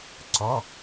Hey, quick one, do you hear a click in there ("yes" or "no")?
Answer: yes